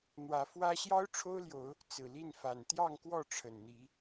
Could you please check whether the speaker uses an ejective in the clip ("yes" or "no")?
no